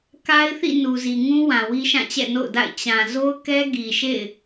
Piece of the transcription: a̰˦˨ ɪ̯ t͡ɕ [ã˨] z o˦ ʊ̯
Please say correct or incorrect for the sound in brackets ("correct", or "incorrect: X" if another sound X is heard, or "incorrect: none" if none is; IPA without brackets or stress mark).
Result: correct